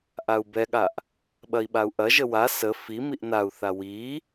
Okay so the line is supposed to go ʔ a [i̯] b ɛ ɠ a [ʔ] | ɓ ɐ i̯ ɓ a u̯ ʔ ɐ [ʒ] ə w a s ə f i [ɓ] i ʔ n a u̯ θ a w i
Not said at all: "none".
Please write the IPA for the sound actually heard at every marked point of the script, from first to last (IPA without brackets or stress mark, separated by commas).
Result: u̯, ʔ, ʒ, m